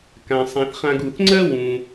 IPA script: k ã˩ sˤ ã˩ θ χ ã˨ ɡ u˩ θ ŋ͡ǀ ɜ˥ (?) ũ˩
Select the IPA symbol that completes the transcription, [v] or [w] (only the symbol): w